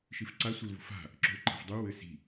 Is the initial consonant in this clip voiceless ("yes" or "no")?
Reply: yes